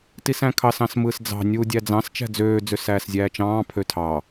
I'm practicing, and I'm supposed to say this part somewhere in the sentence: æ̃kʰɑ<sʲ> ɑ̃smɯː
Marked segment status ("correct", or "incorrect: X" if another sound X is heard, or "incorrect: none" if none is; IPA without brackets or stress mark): incorrect: s